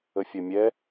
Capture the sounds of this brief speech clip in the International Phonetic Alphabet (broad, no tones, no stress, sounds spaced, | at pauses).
ə fʲ ɐ mʲ ɛ